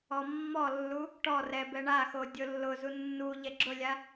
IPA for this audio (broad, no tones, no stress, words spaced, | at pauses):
ɔmːɔlːu | ʈɔ rɛbɛɳaxo dʲolːʊzu nːu ʎɛɡ͡ǁʊlʲa